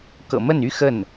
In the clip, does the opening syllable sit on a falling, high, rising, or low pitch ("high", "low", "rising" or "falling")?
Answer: low